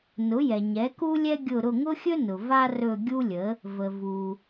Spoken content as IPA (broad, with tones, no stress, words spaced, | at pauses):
nʊ˩˥ jɛ˩ɲɛ˩˥ku˥ lʲɛ˥ɡʲʊ˦˨ ɾʊ˦˨ŋʊ˥xʲɵ˥ nʊ˩va˥rɵ˦˨ ɡʲu˥lʲə˩˥ | və˩ vu˩